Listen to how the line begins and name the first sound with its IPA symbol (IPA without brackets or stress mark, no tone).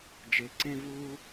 d͡ʒ